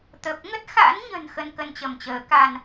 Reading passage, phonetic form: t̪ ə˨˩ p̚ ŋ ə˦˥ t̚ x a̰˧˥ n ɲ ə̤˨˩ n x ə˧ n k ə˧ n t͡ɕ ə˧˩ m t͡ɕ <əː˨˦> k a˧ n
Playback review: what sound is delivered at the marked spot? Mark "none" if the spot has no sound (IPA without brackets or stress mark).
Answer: əː˨˦